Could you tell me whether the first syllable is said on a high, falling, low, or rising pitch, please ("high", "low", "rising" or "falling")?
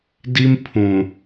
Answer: high